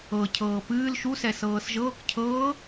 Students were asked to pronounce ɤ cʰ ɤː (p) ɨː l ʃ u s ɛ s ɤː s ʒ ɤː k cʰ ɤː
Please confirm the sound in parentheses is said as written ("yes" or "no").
yes